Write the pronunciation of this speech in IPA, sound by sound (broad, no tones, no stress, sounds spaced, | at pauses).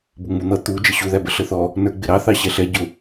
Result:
b ʊ ŋ͡m u n̪ ʌ t̪ u d͡ʒ ə ɕ u ð æ b ə ɬ ə θ ɔ | n ə˞ ɡ͡b ɪ ɾ ɑ θ ɑ ɕ ɛ ɬ ɛ ɟ ʊ